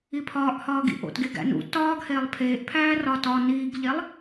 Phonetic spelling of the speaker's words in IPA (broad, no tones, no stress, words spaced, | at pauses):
ipʰɒːʔhɒː ɡḭʔo̰tɡeɡ æ̰nṵ tɒːɡheːlˠ pʰeːʔpʰæː rɒtɒ niːɡʎelˠ